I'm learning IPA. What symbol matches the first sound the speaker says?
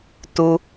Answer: t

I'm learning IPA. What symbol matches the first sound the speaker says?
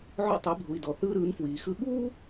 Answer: ʕ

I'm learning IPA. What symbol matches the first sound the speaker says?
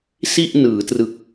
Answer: s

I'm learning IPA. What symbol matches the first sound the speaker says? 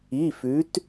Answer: i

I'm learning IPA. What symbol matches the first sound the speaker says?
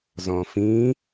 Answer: z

